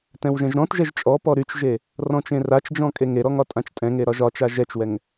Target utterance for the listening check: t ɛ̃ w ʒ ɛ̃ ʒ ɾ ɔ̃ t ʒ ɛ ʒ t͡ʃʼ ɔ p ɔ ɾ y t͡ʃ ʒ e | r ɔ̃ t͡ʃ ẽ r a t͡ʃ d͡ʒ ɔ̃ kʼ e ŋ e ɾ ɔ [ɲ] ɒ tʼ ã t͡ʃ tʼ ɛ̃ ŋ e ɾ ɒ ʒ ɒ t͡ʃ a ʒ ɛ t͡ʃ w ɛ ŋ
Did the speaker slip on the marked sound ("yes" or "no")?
yes